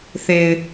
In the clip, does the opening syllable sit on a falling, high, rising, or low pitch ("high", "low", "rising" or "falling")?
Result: low